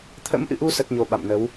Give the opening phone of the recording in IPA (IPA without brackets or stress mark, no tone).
t̪ʰ